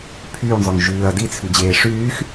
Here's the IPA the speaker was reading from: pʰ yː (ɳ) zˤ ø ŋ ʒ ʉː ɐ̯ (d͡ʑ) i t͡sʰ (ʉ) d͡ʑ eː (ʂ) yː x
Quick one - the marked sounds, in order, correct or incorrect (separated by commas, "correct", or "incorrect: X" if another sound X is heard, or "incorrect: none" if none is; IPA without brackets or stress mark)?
correct, incorrect: d, correct, correct